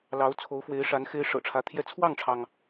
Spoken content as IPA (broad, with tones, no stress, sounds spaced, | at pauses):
l ɑ˧˥ ʊ̯ t͡sʰ o˧˥ ʊ̯ f w e˧˥ ɪ̯ ʂ a˧˥ n x e˧˥ ɪ̯ ʂ ɤ̰˨˩ ʈ͡ʂʰ ä˧˥ t̪ʰ j ɛ˥˧ t͡sʰ w ɑ˥˩ ŋ ʈ͡ʂʰ ɑ˩ ŋ